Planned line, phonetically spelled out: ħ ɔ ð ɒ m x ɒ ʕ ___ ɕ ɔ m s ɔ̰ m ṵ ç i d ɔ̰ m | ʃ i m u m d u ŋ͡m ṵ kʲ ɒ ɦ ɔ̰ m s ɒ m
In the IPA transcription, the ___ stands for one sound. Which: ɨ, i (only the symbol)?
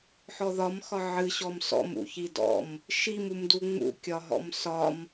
ɨ